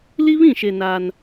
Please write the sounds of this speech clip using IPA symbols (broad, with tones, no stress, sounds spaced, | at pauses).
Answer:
l i˦ β ĩ˦˨ ʃ e˨ n a˦ n